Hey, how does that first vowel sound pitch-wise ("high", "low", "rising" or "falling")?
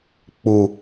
low